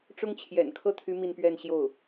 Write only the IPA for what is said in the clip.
ʈ͡ʂʊ˥ŋt͡ɕʰjɛ̰˨˩n kʰɤ˥˩t̪ʰy˧˥ mi˥˧npɥɛ˥˧n ɕjo˥˩ʊ̯

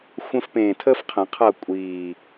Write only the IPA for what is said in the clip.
xʷə̃˥fpẽː˦˨ tʰəː˥fqʰə̃˨˩˦ qʰʌ˦˨kʷʼiː˨˩

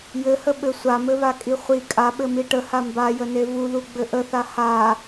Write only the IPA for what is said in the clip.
jɘhəɓɘ sʷamɘβakʼi χʷi kʼaɓɘmi ʈəha mbajəne vuðuɡ͡bɘ ʔəθa ha

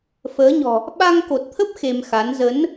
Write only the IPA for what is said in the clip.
fəː˨˦ɲɔ̤˨˩ | ɓa˧ŋko˨˩t̚t̪ʰə˦˥p̚ xe˧mxa˨˦n zə˨˦n

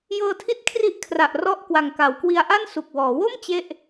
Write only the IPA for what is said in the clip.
jɤː˧tʰi˦˥t̚ kʰri˦˥ʔ kʰra˨˩ʔ rɔ˥˩ʔ kwa˨˩ŋka˩˦wkwi˧a̯ʔa˥˩n su˨˩k̚wɔː˩˦wo˥˩m t͡ɕe˥˩ʔ

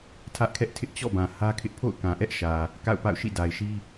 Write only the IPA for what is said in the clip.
tʰä˦ʔkʰɛ˦ʔtʰɪ˦ʔ t͡ɕɔ̰˦˨ bã˨ hä˦kʰɪ˦ʔ pʰo̰˦˨ʊ̯ kã˨ ʔɛ˦ʔ ʃä˨ | ka̰˦˨ʊ̯pa̰˦˨ʊ̯ ʃḭ˦˨da˨ɪ̯ʃi˦

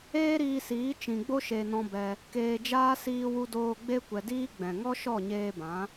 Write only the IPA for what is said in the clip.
eː˦ɾiː˧siː˨˦ t͡ʃĩ˨ɡ͡bo˧ʃe˨ nɔ̃˧bɛ˧ | keː˧d͡ʒaː˦ siː˧wu˧doː˧ ɡ͡be˧kʷɛ˨diː˧ ɡ͡bɛ̃˨ŋɔ˦ ʃɔ˦˨ɲeː˧bã˨˦

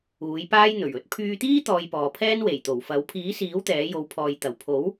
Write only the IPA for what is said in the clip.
uː˨˥jpaː˥jn̪ɵ˨˩ɥ ɵ˨˥t̚pʰyː˧t̪iː˥ t̪ɔː˧jpɔː˨pʰɛː˥n we˨˩jt̪o˨˩wfɐ˨˥w pʰiː˨˥siː˨˥w t̪ɛː˨˥jo˨˧wpʰɔː˨j t̪ɐ˨˩wpʰo˨˥w

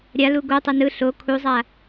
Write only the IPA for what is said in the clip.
ɾʲa luɡotˤʌ nɯ ɬo kʰuzˤa

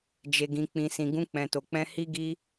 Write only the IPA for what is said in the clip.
d͡ʒe˨ɡĩ˨ k͡pĩ˨sĩ˨ ɡũ˧k͡pɛ̃˨to˨k͡pɛ̃˧ hi˦ɡi˦

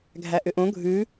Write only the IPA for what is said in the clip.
ɡʱæʔʏʔõ ɡʱʉ

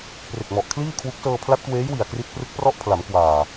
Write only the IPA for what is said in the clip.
pre˨˩k̚mɔ˨˩ʔ kʰliː˥˩kʰwu˦˥k̚ sɤː˧pʰla˦˥t̚kweː˦˥jwi˨˩a̯ kri˦˥t̚ prɯ˦˥k̚prɔ˥˩ʔ pʰla˩˦mkwaː˨˩

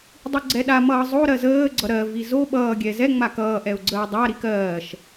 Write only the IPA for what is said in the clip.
dˤiɡ͡ǀɛɗamʌː zˤoɾɜ zəːɡ͡ǀʌ ɾɜvi zo ɓʌːɡʲɛ zɛŋ͡ma kʌːʔɛʊ̯ ɡ͡ǀəːdˤaɾi kɜːʃ

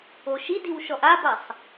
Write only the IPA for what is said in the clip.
oʃidiw ʃɔʔabasˤ

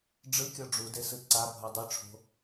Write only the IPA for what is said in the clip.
ɖ͡ʐɯkʲɔ ɖ͡ʐudesɯ ǀabʱɤ dˤɯʈ͡ʂʰo̤

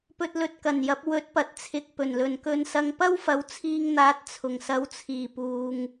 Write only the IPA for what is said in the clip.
pɵ˧t̚lɵ˧t̚kɐ˨˩njɐ˨˥p̚ wɵ˨˥t̚pɐ˨t̚t͡sʰɪ˨k̚ pɵ˨˩nlɵ˨nkɵ˧nsɐ˧ŋ pɐ˥wfɐ˨˧wt͡sʰiː˧ŋn̪aː˨˥t̚ t͡sʰʊ˨˩ŋsɐ˨˧wt͡sʰiː˨˩puː˨ŋ

